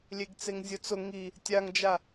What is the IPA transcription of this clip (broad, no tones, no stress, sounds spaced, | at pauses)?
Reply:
lʲ e ɡ t͡s e ŋ zʲ ʊ t͡s ʊ ŋ i | tʲ a ŋ d͡ʒ a